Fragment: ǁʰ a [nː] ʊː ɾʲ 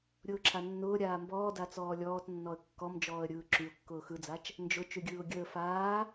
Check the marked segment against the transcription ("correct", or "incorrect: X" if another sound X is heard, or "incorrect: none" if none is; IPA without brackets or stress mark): correct